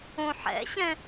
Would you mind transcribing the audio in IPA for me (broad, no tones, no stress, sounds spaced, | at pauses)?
õ ħ ɛ̰ ɕ ɛ̃